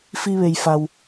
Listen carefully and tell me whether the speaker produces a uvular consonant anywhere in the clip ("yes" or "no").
no